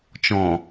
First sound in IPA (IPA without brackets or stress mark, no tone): t͡ʃ